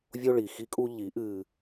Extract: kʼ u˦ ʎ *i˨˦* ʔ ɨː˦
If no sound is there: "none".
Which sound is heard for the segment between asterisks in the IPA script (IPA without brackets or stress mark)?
i˨˦